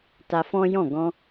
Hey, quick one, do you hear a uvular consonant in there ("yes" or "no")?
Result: no